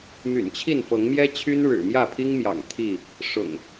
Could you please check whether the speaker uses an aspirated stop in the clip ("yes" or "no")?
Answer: yes